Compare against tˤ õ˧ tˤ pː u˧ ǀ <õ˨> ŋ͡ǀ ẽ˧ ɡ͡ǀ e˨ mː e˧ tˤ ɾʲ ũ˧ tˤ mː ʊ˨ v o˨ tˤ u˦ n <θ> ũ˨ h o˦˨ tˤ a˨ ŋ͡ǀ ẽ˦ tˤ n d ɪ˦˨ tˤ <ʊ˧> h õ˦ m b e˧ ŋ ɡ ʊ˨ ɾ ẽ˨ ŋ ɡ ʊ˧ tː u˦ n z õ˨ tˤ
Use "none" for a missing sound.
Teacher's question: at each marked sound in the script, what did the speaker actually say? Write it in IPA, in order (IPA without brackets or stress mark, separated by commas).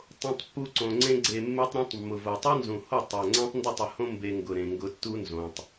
õ˨, z, ʊ˨